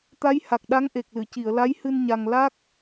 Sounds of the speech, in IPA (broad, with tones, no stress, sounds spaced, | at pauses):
t̪ a˧˥ j h a˨˩ k̚ ɗ a˧˥ ŋ ʔ e˨˩ k̚ l ɨ˨˩˨ c i˨˩˨ ə̯ l a˧˥ j h ɨ˧ n ɲ a˧ ŋ l a˦˥ k̚